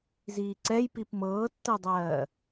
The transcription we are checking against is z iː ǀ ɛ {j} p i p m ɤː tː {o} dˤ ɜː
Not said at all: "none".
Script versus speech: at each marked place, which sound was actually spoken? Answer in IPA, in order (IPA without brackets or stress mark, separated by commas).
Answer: j, ɤ